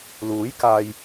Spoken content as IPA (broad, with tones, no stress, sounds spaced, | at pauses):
l uː˨˥ j k aː˨ j